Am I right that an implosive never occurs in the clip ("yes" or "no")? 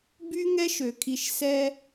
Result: yes